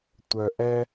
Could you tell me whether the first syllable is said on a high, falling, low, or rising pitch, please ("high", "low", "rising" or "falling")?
low